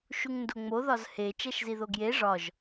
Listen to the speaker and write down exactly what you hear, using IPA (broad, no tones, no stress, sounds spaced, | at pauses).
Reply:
ʃ u ŋ n d o ŋ͡m o ð ɒ z h e t͡ʃ æ ʃ z i ð o ɡ j e ʐ ɒ ʒ